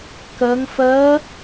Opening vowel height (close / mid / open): mid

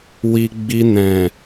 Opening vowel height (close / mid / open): close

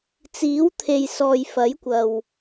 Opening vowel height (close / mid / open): close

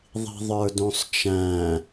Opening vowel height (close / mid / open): close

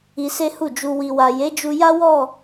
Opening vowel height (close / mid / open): close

